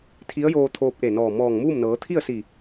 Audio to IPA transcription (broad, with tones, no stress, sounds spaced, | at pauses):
t̪ʰ i˧˥ ə̯ j oː˧ t̪ʰ oː˧ p̚ ʔ e˧˩ n ɔː˧˩ m ɔː˧˩ ŋ m uː˥˨ m n ɤː˩˧ t̪ʰ i˥˨ ə̯ s i˧˩